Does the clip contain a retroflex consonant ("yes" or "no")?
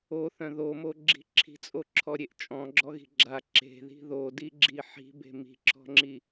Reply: no